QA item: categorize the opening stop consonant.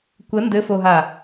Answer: plain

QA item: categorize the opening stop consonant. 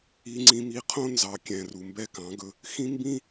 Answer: click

